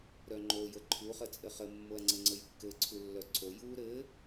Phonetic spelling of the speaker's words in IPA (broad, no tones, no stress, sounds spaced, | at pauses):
ɾ œ ŋ͡ǃ o j ə ǃʰ u χ ə t͡sʼ ɘ χ ə mː o ɐ̯ ŋ͡ǀ ɘ ŋ͡ǀ ə j kː ɘ ǀʰ u lː œ ǀʰ o j u ɾ ɘ